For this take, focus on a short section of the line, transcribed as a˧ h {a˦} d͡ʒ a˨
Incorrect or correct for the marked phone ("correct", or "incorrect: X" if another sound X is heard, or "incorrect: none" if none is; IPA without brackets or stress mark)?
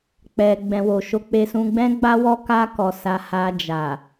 incorrect: a˧